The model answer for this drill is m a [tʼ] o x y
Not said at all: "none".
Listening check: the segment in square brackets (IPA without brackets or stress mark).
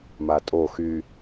tʼ